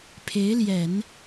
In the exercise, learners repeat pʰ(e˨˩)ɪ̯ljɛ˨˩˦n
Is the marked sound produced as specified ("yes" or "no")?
no